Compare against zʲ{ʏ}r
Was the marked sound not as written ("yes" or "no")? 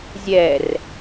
yes